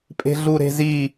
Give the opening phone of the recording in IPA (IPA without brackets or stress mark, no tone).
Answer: pʼ